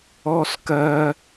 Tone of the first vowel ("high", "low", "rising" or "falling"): high